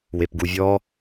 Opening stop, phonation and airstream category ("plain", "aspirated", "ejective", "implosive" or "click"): plain